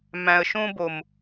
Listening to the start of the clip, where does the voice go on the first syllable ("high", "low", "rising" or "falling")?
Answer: low